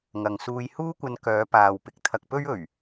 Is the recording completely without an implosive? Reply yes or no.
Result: yes